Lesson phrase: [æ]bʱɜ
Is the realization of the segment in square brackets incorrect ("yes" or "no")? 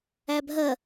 no